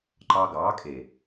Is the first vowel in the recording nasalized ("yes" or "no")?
no